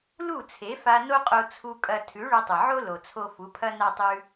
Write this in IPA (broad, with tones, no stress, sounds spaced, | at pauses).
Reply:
l u˦˨ t͡sʰ e˨˦ f a˧ n o˦ qʼ o˧ t͡sʰ u˧ kʼ ɐ˧ tʰ ʉ˨˦ ɭ ɵ˧ tˤ ɨ˨ ʕ o˦ l o˨ t͡sʰ o˧ f u˨˦ pʰ ɐ˦ n a˦ tˤ ʉ˦